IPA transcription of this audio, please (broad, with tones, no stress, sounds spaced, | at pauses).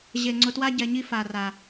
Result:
ʑ e˨ ŋ͡ǀ ʊ˨ t w a˦ ɟ ɛ˨ ɲ i˦ f a˨ r a˨